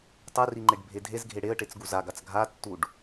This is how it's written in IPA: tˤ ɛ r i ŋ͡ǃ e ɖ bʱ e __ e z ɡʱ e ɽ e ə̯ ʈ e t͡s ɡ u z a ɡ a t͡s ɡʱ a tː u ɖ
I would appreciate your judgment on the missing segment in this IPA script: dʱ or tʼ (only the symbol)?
dʱ